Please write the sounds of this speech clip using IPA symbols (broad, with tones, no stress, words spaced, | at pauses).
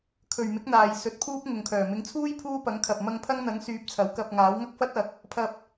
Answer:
kʰɵ˨ɥmɪ˨˥k̚n̪aː˨j sɵ˨˥t̚pʰuː˥p̚ ŋʊ˨ŋkʰœː˨˩ mɪ˨˥ŋt͡sʰuː˥j pʰuː˥ pɐ˨˥ŋkʰɐ˨p̚ mɐ˧ŋpʰɐ˥ŋn̪ɐ˨˥ŋsyː˨˥p̚ t͡sʰɐ˨˥wkɐ˧p̚ŋaː˨˥w ŋɐ˥k̚fɐ˥t̚ɐ˨˥k̚ | pʰɐ˧p̚